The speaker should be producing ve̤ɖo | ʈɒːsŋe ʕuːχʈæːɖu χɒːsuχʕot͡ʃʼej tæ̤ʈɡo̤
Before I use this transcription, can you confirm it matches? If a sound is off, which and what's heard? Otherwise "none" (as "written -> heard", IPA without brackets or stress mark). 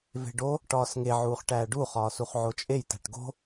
none